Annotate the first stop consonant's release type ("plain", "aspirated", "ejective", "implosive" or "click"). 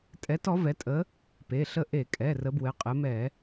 ejective